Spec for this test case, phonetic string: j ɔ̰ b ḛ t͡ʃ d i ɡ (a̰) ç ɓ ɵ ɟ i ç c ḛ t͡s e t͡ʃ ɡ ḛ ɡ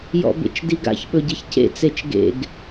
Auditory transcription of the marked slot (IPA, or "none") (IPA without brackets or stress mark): a̰